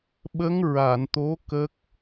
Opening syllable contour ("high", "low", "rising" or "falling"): rising